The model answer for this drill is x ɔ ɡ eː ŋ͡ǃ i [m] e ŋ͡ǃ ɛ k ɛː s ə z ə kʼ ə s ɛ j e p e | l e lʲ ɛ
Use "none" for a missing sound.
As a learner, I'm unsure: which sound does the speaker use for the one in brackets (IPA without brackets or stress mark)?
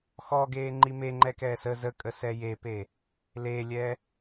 m